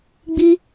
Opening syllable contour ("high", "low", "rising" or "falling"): high